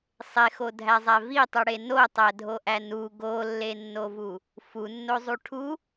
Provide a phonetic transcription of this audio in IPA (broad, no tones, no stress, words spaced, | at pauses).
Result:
sˤexodʱæzˤæ vitˤuɽe notˤædʱoʔæ nu ɡolːenːovu | funːozˤu ʈʰu